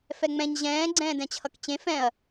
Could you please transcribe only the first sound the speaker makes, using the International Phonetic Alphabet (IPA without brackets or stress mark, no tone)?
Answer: f